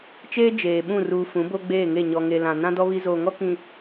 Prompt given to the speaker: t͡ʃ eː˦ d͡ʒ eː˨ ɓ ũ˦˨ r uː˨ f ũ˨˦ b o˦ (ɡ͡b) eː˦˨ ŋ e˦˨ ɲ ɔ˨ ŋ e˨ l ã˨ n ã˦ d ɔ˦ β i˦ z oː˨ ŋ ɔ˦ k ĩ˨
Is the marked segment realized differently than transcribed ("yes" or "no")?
no